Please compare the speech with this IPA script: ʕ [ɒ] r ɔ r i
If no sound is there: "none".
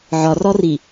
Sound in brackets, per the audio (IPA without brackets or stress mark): ɒ